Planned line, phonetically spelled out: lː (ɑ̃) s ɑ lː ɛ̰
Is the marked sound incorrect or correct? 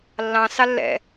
correct